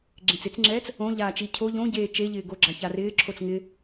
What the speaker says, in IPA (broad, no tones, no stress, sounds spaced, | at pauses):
ɡ͡ǁ ẽ t͡s ɪ t͡s ŋ͡ǁ ɛː t͡s | õ ʎ aː t͡ʃ i cʰ o ʎ õ ɟ eː t͡ʃ e ʎ ɪː ɡ o ɡ͡ǁ a ç a r ɪː ǁʰ o t͡s ŋ ɪ